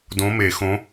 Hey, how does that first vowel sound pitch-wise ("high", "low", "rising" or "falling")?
rising